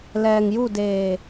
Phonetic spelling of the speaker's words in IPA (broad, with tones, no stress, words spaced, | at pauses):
lɛː˩ŋju˧˩ deː˧˩